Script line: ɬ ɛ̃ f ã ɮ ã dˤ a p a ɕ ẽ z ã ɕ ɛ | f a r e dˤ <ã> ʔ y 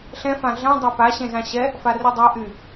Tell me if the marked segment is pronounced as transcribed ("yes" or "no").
no